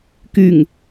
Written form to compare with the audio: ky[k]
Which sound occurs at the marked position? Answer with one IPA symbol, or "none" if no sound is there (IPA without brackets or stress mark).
ŋ